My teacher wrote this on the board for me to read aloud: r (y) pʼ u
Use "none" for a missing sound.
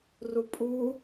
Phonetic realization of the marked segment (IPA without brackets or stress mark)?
u